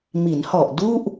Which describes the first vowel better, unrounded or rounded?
unrounded